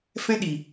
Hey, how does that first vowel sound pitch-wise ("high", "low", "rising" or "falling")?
high